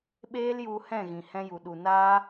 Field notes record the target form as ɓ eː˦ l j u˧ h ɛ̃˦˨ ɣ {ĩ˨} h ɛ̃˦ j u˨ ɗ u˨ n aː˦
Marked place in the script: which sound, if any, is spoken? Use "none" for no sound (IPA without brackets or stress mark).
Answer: ĩ˨